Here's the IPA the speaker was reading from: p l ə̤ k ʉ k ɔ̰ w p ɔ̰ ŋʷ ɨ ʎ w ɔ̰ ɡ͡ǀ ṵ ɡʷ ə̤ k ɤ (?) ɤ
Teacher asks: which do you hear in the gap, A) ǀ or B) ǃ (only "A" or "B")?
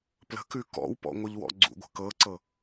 A